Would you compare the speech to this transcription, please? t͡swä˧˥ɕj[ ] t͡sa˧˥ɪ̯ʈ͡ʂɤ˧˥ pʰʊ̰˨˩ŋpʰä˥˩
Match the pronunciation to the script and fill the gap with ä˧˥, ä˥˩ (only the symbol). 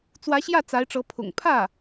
ä˥˩